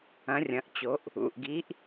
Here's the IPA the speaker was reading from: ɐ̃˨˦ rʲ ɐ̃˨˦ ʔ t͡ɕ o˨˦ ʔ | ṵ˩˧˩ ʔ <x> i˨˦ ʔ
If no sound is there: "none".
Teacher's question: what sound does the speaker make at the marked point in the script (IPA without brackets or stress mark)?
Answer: ɡ